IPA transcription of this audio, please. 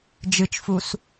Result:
d͡ʒ ɨ t͡ʃ f u s

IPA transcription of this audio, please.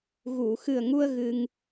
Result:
ɣ u˨˩˨ x ɨ˨˩ ə̯ ŋ u˧ ə̯ ɣ ɨ˧ ŋ

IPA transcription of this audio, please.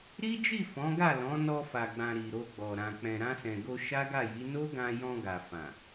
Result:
ɾ i˦ d͡ʒ i˦˨ f ɔ̃˨˦ ɡ a˦˨ l ɔ̃˨˦ n ɔ˧ f a˨ ɡ͡b ã˨ ɾ i˨ ɾ o˧ ɡ͡b ɔ˨ ɾ ã˨ k͡p ɛ̃˨ ɾ ã˧ s ɛ̃˨ ɡ o˧ ʃ a˦ ɡ a˦˨ j i˨˦ n o˦ ɡ ã˧ j ɔ̃˧ ɡ a˨ f ã˨

